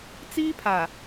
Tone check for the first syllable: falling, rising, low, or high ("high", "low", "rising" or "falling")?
high